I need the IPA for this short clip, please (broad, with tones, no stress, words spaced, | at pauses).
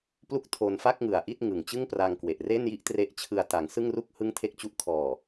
plu˥˩k̚tʰo˧nfa˥˩k̚ŋɯ˩˦a̯ ʔi˥˩t̚ŋɯ˨˩ŋ t͡ɕɯ˥˩ŋpra˧ŋkwe˨˩ʔre˥˩n ji˥˩ʔtre˦˥ʔt͡ɕʰɯ˧a̯ ta˩˦ŋsɯ˥˩ŋru˥˩k̚ hɯ˥˩ŋtʰe˥˩k̚t͡ɕu˥˩ʔ kʰɔː˨˩